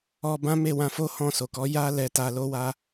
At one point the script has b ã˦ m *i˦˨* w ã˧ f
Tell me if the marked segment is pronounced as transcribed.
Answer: no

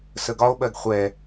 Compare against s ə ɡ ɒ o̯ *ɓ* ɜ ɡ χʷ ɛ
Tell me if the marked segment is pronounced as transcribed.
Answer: yes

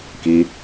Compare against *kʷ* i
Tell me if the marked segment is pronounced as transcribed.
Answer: no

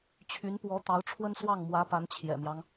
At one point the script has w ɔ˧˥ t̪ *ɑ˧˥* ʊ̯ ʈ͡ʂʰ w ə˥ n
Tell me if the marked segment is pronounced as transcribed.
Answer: yes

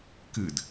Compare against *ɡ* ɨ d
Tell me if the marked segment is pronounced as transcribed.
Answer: no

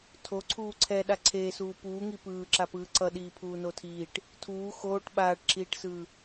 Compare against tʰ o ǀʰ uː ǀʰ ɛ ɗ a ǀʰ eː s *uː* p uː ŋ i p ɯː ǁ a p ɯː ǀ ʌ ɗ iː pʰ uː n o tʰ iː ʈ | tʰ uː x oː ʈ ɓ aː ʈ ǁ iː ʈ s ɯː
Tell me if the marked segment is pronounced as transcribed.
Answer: yes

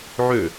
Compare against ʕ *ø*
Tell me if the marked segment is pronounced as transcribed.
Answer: yes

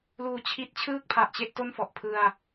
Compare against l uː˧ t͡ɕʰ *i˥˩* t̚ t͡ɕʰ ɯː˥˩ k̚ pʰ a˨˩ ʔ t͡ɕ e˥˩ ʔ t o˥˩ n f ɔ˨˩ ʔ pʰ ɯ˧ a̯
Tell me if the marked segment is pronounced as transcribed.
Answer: no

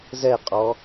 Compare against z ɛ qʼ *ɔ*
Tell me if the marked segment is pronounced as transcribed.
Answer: yes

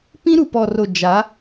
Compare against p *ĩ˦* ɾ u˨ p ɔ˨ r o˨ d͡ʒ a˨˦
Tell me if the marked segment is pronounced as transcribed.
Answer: yes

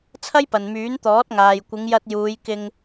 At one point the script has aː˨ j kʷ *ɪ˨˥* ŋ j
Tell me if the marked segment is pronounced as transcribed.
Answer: no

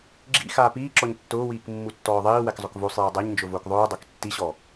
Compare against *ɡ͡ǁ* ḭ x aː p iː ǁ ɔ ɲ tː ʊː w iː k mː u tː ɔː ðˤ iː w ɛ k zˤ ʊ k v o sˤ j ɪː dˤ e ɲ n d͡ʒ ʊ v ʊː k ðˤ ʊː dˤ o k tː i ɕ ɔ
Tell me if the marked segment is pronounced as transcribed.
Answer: yes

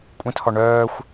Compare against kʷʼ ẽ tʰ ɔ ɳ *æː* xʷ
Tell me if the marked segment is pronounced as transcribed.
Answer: no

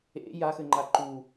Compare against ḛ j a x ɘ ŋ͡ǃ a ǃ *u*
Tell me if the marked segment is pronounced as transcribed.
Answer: yes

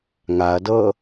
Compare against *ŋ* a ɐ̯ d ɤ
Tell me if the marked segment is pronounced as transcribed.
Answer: yes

